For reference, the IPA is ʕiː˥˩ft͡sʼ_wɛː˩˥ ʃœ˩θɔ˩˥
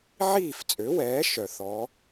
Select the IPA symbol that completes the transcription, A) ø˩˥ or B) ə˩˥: A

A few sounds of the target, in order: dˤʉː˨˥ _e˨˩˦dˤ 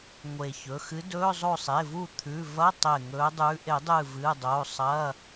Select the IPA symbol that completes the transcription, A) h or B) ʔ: B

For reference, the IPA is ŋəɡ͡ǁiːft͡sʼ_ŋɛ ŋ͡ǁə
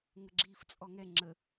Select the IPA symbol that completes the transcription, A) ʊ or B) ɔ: B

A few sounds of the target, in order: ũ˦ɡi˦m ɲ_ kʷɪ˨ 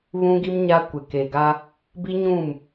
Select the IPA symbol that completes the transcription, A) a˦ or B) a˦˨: A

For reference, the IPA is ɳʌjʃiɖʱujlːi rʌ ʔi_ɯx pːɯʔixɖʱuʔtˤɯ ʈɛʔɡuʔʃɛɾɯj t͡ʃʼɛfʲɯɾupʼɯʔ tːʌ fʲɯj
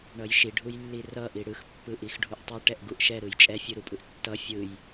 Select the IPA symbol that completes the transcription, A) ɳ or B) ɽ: B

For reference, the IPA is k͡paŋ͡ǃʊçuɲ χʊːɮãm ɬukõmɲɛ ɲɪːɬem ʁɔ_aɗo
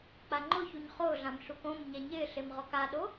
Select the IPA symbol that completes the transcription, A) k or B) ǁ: A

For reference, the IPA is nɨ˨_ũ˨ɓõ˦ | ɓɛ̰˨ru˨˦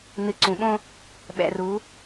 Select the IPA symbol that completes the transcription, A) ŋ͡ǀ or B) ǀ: B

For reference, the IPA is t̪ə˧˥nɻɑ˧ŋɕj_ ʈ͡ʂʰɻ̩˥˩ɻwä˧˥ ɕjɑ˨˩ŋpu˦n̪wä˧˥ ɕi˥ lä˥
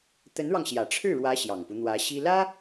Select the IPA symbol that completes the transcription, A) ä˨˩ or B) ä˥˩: A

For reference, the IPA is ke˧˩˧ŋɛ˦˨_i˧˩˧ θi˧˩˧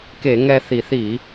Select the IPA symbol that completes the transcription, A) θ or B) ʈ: A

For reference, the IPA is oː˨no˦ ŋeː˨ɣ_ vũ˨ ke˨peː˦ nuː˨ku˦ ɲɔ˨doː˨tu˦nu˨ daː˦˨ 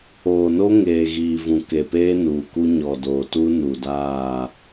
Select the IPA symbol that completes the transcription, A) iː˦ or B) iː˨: B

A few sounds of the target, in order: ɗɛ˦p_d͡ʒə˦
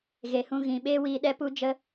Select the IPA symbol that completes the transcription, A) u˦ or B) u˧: A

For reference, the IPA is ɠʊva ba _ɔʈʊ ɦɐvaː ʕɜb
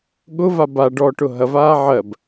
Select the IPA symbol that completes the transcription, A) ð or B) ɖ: B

